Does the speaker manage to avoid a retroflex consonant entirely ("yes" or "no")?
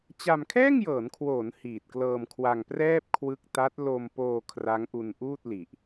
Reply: yes